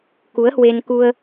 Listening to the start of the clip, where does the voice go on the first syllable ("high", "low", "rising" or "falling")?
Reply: rising